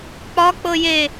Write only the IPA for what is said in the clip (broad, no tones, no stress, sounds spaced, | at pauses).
k͡p ɒ k͡p ɤ j e